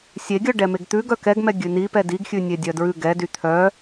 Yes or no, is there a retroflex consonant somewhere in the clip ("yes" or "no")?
yes